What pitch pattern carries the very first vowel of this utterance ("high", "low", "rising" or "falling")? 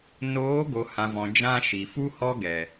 rising